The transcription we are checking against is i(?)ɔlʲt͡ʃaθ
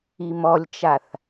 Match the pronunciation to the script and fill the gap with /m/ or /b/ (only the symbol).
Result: m